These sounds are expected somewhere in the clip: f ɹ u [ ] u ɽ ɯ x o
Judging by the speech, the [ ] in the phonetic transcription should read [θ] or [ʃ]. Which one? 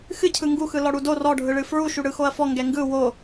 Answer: ʃ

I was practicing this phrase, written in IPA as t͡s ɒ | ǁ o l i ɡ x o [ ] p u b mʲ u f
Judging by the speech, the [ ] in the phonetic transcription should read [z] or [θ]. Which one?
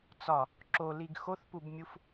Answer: θ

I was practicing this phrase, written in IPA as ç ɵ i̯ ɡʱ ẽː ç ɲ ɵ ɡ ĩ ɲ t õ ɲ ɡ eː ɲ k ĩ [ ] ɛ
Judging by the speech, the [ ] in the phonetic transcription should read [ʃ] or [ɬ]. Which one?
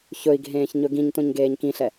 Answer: ɬ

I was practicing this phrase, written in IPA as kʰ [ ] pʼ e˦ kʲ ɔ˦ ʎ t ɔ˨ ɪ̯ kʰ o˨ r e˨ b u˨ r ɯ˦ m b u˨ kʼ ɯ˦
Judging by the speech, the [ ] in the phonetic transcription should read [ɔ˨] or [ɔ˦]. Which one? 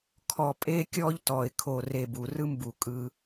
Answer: ɔ˨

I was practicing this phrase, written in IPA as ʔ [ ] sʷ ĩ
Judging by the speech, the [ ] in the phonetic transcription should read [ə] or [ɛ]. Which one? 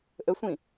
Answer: ə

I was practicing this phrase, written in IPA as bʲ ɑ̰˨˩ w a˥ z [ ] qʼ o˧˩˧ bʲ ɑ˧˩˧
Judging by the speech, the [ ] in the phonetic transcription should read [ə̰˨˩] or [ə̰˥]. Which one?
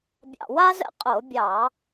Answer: ə̰˥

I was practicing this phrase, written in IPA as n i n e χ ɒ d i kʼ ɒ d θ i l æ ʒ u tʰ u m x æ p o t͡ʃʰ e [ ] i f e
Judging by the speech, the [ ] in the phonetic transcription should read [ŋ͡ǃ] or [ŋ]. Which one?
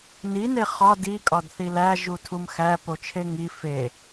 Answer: ŋ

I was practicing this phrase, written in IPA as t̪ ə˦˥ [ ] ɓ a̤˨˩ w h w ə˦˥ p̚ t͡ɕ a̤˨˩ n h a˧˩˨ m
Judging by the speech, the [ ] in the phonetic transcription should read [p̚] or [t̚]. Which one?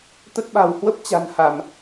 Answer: t̚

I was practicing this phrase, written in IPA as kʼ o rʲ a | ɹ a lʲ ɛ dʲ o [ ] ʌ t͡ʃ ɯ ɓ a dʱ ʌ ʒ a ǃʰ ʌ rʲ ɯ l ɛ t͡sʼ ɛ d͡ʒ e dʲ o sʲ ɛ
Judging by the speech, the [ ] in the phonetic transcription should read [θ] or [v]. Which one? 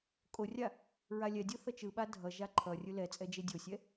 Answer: θ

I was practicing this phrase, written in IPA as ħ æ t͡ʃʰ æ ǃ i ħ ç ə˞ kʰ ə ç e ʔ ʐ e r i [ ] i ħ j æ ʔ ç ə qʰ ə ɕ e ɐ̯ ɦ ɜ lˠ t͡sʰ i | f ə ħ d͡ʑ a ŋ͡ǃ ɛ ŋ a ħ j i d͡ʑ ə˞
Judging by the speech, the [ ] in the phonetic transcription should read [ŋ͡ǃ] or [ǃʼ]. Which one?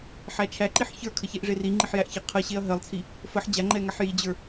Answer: ŋ͡ǃ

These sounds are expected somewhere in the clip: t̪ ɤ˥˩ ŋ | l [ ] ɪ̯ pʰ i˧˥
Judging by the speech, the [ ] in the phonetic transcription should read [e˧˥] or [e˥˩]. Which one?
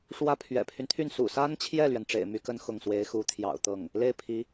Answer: e˥˩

